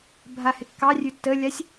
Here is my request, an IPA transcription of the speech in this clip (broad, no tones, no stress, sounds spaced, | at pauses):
bʱ a h ɪ kː ɑ rʲ ʉ tː ə lʲ a sʲ